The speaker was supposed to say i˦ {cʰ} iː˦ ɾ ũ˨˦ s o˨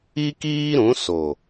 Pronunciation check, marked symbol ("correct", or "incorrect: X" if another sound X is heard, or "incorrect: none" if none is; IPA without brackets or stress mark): incorrect: k